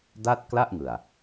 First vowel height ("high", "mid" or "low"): low